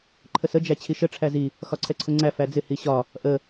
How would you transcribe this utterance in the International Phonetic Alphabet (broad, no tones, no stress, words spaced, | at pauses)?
ǃʰəsə d͡ʒæt͡ɕʰiʃə ʈ͡ʂʰæzi | xɒǀʰɛǀʰʊŋ͡ǀæ fæd͡zɪ hiɕɒ | ʔə